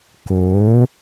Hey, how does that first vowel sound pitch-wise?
rising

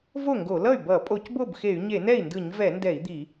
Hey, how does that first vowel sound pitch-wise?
falling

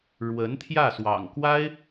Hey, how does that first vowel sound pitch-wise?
rising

